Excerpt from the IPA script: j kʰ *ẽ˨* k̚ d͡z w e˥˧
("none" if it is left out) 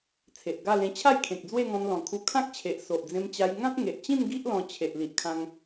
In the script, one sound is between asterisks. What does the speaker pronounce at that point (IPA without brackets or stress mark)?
ẽ˨